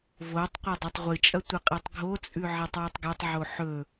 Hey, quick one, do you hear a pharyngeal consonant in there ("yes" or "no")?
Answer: yes